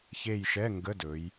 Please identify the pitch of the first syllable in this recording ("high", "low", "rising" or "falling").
falling